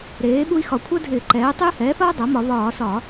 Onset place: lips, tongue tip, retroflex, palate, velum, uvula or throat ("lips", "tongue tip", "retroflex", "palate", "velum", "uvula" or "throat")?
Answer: tongue tip